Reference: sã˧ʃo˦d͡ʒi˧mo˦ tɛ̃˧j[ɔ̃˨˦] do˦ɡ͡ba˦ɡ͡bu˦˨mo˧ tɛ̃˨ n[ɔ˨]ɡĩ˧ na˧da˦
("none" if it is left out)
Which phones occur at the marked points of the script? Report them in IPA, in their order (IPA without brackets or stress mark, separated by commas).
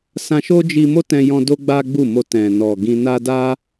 ɔ̃˧, ɔ˨